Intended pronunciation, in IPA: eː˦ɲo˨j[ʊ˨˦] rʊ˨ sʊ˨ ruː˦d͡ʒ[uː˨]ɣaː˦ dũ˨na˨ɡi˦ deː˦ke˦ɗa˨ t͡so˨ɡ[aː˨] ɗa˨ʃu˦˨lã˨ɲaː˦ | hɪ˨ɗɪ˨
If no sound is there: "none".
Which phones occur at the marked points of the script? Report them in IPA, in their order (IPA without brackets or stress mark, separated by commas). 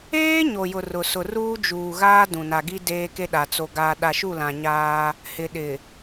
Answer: ʊ˨, uː˨, aː˨